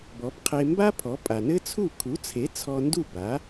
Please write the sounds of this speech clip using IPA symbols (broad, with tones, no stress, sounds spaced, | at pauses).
b ɔ˩˥ b qʰ e˧ m b a˥ pʰ ɔ˩˥ pʼ a˩ n ɘ˥ t͡sʰ u˥˩ kʰ u˩˥ t͡sʰ e˩˥ t͡sʰ ɔ˧ n d u˥˩ b a˩˥